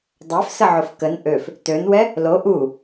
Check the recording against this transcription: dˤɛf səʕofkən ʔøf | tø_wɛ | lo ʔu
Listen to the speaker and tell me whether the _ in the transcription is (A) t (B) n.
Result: B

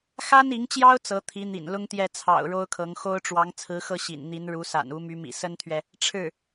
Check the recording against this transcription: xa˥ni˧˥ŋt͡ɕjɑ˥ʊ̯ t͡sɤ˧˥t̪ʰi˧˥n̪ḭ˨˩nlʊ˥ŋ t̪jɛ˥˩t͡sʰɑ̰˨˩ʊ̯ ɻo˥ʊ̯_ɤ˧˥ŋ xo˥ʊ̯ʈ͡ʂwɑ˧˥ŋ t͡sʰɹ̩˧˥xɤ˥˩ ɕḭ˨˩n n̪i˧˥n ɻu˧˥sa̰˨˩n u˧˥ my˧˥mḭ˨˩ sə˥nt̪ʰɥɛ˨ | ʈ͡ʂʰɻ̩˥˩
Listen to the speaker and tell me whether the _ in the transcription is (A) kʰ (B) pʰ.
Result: A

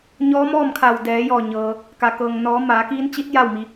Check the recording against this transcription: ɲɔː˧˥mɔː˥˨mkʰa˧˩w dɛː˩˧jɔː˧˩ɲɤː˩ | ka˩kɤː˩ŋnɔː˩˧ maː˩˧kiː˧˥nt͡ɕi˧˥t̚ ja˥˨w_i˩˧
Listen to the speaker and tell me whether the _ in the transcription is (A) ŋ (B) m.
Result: B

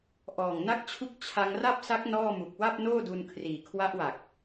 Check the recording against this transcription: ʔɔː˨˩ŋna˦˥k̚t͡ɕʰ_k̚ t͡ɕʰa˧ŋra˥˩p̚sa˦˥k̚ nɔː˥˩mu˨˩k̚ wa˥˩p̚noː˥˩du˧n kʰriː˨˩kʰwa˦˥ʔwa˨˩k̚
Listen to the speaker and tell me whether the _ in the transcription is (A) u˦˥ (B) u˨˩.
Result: A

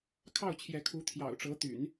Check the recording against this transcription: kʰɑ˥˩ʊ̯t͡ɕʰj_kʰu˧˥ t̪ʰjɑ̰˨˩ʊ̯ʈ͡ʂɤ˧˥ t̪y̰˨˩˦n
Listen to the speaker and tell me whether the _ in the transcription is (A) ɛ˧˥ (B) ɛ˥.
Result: A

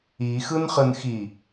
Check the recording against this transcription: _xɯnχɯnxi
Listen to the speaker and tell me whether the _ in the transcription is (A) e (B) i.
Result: B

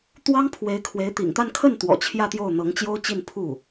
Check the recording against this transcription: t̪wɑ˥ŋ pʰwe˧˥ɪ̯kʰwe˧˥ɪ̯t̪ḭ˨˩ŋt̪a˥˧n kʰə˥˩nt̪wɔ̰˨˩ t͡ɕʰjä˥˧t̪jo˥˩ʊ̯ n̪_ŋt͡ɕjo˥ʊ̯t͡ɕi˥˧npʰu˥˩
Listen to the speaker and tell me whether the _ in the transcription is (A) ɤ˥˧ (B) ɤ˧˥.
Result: B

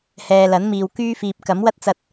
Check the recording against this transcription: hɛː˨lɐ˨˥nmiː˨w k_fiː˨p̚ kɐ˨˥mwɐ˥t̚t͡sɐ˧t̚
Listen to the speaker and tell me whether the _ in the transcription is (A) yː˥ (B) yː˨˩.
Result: A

